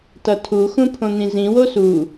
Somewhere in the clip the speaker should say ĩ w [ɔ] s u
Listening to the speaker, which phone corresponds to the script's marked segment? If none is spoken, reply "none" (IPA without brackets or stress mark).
o